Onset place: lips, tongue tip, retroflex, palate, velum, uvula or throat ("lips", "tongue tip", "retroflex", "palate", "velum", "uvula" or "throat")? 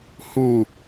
throat